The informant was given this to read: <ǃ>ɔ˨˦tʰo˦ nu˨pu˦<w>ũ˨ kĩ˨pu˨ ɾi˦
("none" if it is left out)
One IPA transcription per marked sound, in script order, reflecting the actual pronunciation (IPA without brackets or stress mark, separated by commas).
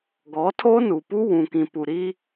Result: ɡ, w